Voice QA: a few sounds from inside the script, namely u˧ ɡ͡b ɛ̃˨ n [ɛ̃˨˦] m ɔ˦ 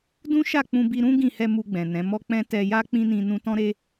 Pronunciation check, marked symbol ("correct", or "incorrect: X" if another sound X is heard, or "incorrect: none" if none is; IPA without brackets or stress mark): correct